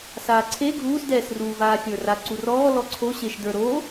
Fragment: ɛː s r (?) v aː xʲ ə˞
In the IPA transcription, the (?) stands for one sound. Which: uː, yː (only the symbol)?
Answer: uː